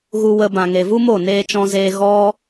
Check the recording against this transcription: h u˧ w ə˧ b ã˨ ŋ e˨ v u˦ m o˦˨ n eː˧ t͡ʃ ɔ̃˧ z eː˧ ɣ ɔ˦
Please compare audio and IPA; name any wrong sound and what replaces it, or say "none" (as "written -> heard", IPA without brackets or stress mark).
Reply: h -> ɣ